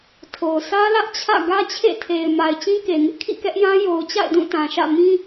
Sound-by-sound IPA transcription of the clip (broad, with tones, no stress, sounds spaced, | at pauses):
tʰ o˨ ʊ̯ s ä˦ l ä˦ ʔ t͡ɕʰ ä̰˦˨ ɡ ä˦ t͡ɕʰ ḛ˦˨ tʰ e˨ ɪ̯ m a˨ ɪ̯ t͡ɕ ĩ˦ k e˨ ŋ ɪ˦ ʔ kʰ ḭ˦˨ k ɛ˦ ʔ j ã˦ j o˨ ʊ̯ t͡ɕ a̰˦˨ ɪ̯ d ũ˦˨ t ã˨ ʃ ä̰˦˨ m ĩ˦